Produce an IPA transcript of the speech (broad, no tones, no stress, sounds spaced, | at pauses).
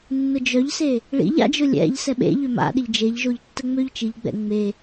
nː ʊ d͡ʒ œ ʎ s e | ɭ ḭ ʎ a̰ d͡ʒ ʊ lʲ ɛ̰ ʎ s ɛ ɓ ḛ ʎ ʏ m a̰ ɗ ɪ ʎ d͡ʒ e ʎ ʒ o ʎ tː ə ŋ͡m ø ʎ t͡ʃ i ʎ ɡ͡b ɛ̰ ŋ͡m e